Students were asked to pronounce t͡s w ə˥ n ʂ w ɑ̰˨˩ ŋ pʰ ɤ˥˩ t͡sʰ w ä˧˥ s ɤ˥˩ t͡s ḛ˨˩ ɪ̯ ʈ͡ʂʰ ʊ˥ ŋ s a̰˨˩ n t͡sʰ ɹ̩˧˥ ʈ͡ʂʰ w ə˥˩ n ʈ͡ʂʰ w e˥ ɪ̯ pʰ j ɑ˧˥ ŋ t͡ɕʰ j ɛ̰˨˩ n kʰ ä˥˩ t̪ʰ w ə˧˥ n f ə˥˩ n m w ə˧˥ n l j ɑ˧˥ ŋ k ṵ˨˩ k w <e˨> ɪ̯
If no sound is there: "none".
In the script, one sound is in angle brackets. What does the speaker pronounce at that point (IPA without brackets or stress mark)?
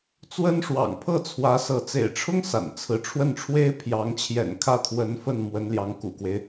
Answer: e˦